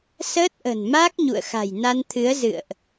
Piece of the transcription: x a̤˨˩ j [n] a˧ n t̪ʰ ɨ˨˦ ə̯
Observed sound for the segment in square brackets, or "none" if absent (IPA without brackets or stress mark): n